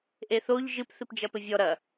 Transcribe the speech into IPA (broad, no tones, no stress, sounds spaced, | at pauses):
ʔ e θ o ʎ ʒ ɨ p θ ɨ p d͡ʒ ɐ p ɘ vʲ ɔ ɾ ɐ